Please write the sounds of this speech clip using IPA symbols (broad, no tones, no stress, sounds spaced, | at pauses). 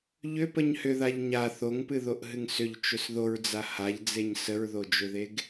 ʎ ʏ p ə ɲ h ʏ ð a ʎ ɲ a θ o ŋ p ɨ ð o ʔ ɦ ɨ ŋ s ʏ ʎ t͡ʃ ʏ s ð o ɹ d͡z a h a ʎ d͡z e ɲ s ə ɹ ð o d͡ʒ ʏ ð e ɡ